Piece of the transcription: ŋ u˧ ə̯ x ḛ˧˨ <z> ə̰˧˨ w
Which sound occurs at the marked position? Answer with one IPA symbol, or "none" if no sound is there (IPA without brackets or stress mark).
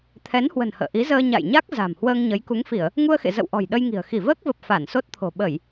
z